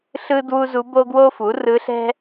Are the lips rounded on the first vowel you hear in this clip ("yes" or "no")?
no